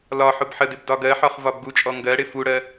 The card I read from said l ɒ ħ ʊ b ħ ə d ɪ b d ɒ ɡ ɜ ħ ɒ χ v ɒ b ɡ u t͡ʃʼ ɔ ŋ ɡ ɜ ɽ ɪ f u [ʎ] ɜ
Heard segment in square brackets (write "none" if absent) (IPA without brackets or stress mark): ɽ